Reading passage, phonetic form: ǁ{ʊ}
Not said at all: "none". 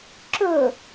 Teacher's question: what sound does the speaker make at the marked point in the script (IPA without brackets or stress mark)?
ʊ